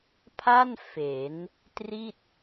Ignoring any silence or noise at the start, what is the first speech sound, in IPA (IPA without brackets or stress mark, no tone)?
pʰ